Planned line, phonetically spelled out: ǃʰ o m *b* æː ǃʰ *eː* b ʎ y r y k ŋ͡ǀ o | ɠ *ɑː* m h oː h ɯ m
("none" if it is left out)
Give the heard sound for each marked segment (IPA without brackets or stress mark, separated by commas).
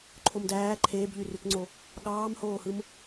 d, eː, ɑː